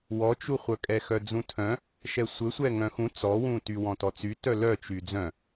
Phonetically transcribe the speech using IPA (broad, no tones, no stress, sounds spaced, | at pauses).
w ɔ t͡ʃ u χʷ œ kʼ ɛ x œ d͡z ũ tʰ œ̃ | ʃ ɛ sʷ ɘ sʷ ɛ ŋ œ̃ x ũ t͡s ɔ w ũ t y w ɔ̃ t ɔ t͡s y t œ l œ t͡ʃ y d͡z œ̃